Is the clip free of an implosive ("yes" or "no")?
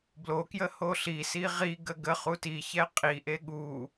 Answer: no